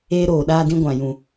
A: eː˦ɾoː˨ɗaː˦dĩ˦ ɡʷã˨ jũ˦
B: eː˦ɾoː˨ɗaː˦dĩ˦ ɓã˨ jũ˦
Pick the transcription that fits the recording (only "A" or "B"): A